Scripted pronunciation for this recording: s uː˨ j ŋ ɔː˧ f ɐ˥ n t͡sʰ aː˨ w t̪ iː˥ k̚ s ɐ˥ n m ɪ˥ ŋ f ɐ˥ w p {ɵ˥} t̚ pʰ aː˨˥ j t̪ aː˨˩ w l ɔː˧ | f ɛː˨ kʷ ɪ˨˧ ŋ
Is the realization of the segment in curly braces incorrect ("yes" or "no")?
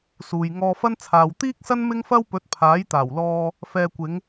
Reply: yes